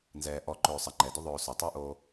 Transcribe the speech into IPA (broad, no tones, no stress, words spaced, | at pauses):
nzɛːʔɔ ǃɵːsˤə ŋ͡ǃɛdʏ ðˤɵːsɵtˤuʔoː